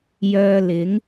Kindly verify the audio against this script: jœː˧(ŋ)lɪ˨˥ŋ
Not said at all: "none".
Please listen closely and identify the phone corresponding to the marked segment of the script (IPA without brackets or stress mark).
none